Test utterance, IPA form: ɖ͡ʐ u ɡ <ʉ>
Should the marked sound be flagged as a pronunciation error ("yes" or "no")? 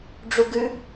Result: no